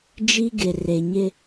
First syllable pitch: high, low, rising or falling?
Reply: high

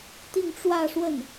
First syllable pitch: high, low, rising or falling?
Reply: falling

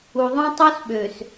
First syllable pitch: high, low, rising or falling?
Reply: low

